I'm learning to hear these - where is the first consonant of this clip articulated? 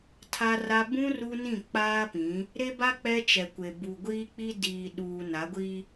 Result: tongue tip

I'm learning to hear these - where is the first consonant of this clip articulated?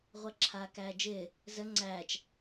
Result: uvula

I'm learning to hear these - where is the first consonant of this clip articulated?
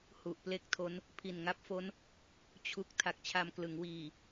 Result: throat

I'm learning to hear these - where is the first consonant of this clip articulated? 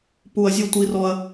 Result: lips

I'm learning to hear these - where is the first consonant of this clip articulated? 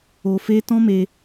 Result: lips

